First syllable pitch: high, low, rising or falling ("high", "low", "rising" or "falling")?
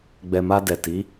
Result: low